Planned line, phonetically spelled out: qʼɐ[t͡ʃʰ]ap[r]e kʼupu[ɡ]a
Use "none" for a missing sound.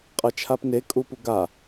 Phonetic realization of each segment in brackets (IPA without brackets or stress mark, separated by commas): t͡ʃʰ, n, ɡ